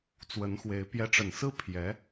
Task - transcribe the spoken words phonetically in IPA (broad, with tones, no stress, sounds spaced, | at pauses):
t͡s w ə˧˥ n x w e˧˥ ɪ̯ p j ɛ˧˥ ʈ͡ʂ ə˨˩ n s ɹ̩˥ pʰ j ɛ˧˥